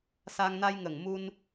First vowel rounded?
no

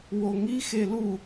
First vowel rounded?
yes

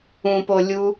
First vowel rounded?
yes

